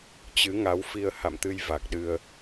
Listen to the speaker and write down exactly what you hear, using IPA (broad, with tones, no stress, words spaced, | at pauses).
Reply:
t͡ɕɨ˨˦ŋa˨˦w fi˧ə̯ ha̰˧˨mt̪ɨ˧j va˨˩k̚ɗɨ˧ə̯